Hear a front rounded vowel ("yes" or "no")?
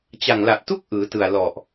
no